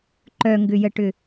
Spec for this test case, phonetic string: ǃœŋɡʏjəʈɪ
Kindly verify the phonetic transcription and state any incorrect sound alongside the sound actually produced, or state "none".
ɪ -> ʏ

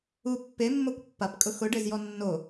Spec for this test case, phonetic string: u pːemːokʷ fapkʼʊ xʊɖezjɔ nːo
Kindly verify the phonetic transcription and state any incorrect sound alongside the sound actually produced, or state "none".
f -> pː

